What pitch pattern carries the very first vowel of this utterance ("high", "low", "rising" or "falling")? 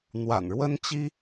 low